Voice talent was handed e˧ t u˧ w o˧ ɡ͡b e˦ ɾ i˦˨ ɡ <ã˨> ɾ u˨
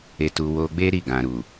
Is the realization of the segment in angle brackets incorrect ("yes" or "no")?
no